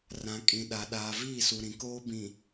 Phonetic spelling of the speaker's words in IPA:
rã˨ kʼĩ˨ɗa˨ ɗaː˨viː˦˨su˨ ɾĩ˨koː˦bĩ˨

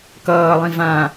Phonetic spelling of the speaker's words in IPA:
kʌːlˠĩ vã

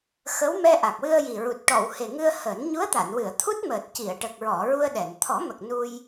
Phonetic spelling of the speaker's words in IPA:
xə˧˥w mɛ˧ʔa˨˩k̚wɨ˧ə̯ ji˨˩ɹu˨˩t̚ ʈɔ˨˩˨whe˨˩ ŋɨ˧ə̯həː˨˩˦n ɲu˧˥ə̯t̪a˨˩˨nwɨ˨˩˨ə̯ t̪ʰu˦˥t̚məː˨˩t̚ ci˨˩˨ə̯ʈə˨˩k̚ɹɔ˨˩˨ ɹu˧ə̯ɗɛ˨˩˨n t̪ʰɔ˨˩˦mə˨˩k̚ nu˧j

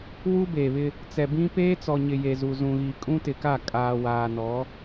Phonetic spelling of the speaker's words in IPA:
wu˦beː˨βɪ˦ | t͡sɛ˨bĩ˦ peː˦t͡sɔ˨ɲɪ˨ je˨zu˨zũ˨ɣi˨ kʼũ˦tɪ˨ka˦˨ kʼaː˨waː˨nɔ˨˦

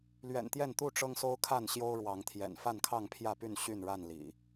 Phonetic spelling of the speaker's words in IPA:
lɥɛ̰˨˩nt̪jɛ˥˨n t̪u˥˨ ʈ͡ʂɤ˦ŋso˦ʊ̯kʰa˥˨n ɕjo˦ʊ̯ ɻwɑ˨˦ŋt̪ʰjɛ̰˨˩n fa˥˨nkʰɑ˥˨ŋpʰjä˥˨py˥˨n ɕy˥˨nɻa˥˨n lḭ˨˩

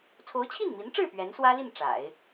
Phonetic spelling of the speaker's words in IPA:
t͡sʰo˧˥ʊ̯t͡ɕʰi˥˩nmi˧˥nʈ͡ʂɻ̩˥˩ pɥɛ˧˥nswä˥li˥˩n ʈ͡ʂa̰˨˩˦ɪ̯

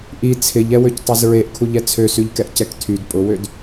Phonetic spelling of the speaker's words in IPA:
ʔi t͡sʰɪʎɛwøctˤez ɹeʔkʰuʎɛ t͡sʰøsyʎkɛʔ cɛktʰyd pʼʊwød

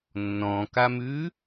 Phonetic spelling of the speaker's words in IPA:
nːɔ̃kamʉ

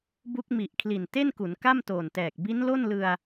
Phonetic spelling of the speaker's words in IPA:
bu˦˥k̚mi˨˩ʔ kʰli˨˩nte˥˩nku˩˦n ka˥˩mtoː˨˩ntɛː˨˩k̚ bi˦˥nlo˥˩nlɯ˧a̯

